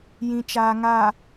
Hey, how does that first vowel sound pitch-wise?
low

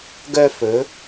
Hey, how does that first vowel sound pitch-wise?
high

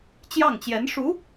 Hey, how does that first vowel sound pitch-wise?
falling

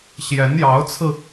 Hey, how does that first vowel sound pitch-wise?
rising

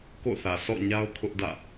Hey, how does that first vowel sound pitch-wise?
falling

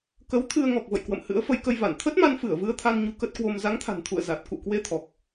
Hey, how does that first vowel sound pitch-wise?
rising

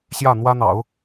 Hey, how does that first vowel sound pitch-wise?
falling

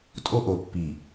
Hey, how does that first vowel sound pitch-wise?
high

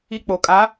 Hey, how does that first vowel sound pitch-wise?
high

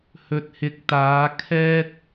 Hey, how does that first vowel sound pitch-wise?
low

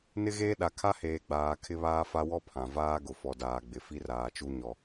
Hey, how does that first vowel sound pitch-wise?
high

